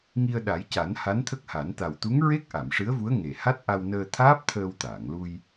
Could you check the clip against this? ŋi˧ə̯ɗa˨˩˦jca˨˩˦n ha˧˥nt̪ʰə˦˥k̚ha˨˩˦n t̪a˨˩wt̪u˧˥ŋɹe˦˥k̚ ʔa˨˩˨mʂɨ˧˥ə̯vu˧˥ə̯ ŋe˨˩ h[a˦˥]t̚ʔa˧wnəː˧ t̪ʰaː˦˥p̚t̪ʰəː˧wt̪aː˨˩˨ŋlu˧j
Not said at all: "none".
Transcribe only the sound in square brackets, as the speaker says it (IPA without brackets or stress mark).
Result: a˦˥